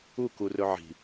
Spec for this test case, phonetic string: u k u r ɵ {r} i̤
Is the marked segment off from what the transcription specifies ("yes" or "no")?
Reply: yes